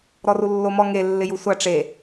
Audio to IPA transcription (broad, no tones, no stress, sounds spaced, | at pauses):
ɾ ɔ r u lː o m ɔ ŋ e lː ɪ j u sʷ a ʈ͡ʂ e